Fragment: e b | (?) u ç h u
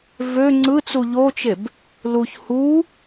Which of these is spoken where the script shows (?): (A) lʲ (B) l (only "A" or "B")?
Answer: B